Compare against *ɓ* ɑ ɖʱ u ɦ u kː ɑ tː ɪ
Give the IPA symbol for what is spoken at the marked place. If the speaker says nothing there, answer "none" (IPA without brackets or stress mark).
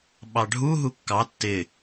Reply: ɓ